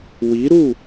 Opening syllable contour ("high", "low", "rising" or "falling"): rising